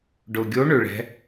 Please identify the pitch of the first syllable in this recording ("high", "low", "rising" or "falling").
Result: low